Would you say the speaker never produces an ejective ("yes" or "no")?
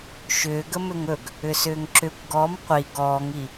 yes